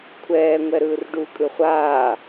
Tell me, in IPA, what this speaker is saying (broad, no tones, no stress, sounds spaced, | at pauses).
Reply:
kʷʰ ɛː ŋʷ ɛ ɾ ɯː r ɖ u kʼ ɯ χʷ aː